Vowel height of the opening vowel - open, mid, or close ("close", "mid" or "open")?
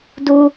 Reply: close